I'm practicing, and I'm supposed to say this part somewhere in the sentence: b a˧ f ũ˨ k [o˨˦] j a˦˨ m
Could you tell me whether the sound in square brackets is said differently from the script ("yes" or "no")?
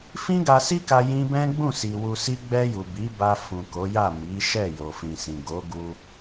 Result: no